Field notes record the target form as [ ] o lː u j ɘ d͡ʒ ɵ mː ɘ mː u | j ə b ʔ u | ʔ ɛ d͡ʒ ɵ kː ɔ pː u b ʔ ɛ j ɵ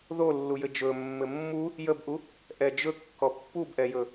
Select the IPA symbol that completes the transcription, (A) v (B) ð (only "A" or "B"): B